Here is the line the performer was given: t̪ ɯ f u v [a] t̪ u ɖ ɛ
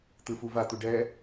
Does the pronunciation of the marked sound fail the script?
no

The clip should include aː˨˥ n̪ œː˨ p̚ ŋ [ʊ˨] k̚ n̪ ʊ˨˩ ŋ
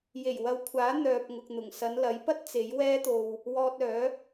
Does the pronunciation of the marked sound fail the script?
no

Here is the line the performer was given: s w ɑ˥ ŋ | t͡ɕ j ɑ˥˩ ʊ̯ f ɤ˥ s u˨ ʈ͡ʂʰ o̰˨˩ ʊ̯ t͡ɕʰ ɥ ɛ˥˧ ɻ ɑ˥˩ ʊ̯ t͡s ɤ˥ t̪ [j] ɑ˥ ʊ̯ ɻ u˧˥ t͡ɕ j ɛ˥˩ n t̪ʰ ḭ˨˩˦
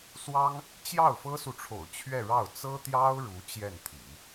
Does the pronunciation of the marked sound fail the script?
no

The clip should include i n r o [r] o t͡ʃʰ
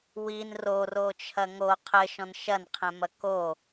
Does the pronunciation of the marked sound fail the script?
no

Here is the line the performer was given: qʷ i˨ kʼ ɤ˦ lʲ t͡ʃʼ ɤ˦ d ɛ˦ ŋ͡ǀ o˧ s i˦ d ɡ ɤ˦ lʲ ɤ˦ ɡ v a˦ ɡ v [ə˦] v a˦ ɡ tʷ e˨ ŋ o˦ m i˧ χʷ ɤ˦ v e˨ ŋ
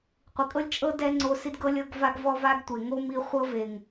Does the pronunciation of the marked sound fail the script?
yes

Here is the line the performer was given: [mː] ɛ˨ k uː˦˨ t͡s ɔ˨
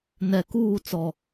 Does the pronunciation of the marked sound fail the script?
yes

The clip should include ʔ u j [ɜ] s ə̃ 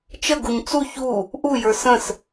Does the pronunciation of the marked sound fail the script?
yes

